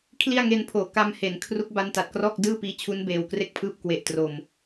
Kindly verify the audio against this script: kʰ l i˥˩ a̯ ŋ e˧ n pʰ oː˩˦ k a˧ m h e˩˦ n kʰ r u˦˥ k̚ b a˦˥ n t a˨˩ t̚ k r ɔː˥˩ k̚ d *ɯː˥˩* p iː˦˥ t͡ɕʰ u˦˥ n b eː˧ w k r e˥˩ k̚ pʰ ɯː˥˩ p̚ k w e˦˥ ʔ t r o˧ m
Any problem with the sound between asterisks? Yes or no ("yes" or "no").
no